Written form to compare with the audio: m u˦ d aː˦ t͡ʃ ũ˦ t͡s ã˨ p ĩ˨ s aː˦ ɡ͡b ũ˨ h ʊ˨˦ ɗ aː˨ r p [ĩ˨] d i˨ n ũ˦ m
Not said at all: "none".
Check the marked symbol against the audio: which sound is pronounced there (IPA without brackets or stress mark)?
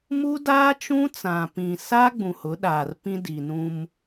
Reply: ĩ˦